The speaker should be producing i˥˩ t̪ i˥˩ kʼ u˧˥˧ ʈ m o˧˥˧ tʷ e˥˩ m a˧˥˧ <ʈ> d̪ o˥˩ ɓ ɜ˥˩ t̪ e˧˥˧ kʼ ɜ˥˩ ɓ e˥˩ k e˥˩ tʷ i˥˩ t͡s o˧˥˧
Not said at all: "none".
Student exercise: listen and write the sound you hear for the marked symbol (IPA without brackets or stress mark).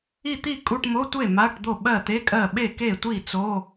ʈ